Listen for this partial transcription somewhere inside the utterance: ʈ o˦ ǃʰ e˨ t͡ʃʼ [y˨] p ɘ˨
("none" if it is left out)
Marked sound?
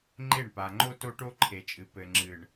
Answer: ɨ˨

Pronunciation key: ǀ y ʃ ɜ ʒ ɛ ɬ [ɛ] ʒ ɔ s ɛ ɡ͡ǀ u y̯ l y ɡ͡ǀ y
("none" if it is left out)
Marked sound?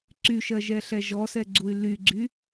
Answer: ɛ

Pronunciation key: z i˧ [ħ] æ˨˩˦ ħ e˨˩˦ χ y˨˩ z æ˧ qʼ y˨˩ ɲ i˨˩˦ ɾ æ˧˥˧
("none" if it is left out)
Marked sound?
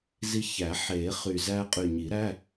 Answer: ç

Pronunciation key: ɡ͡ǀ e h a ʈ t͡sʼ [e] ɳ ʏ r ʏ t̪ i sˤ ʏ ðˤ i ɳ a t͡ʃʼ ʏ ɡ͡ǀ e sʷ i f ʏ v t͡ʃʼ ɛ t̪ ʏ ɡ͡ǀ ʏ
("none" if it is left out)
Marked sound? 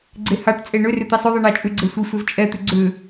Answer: e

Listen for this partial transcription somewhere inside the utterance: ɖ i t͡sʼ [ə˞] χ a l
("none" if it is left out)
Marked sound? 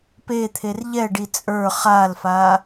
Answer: ə˞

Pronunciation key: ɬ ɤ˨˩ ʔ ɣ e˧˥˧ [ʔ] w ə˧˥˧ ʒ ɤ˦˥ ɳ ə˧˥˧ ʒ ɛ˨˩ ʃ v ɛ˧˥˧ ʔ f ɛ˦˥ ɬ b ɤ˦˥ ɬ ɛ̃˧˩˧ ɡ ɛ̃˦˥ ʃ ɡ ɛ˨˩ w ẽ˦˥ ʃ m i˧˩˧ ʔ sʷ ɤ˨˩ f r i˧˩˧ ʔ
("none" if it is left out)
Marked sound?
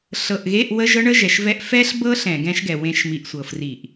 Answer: ʔ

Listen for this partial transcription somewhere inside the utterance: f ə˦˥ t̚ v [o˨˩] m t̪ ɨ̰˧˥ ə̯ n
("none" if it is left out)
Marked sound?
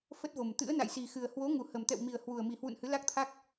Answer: o˨˩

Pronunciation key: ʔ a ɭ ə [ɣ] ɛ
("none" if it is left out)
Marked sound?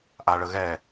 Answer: ɣ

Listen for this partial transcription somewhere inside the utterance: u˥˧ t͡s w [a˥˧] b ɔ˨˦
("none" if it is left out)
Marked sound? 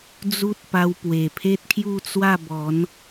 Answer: a˥˧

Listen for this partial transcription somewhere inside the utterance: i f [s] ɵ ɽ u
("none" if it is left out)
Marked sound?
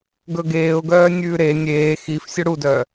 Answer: sʲ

